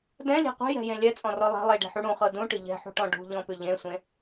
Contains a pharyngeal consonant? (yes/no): yes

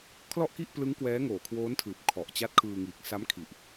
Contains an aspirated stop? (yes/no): yes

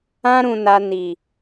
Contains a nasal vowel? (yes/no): yes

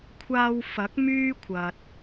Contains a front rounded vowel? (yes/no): yes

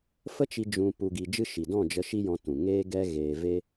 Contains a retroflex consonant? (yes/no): no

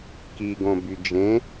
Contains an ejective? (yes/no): no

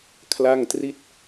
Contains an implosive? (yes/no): no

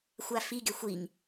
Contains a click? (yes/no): no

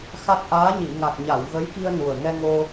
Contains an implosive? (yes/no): no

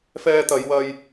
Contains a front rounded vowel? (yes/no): no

